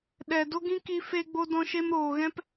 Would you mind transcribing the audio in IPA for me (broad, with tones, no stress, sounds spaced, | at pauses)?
ɗ ɛ˨ d o˦ ɡ ĩ˦ k i˧ f e˧ ɡ͡b o˧ d ɔ̃˧ ʃ e˧ m ɾ oː˨ ɣ ɛ̃˦ p